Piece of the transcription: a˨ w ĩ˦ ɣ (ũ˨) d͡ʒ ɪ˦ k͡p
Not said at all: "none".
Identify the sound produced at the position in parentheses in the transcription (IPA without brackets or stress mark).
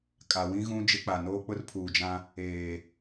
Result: ũ˦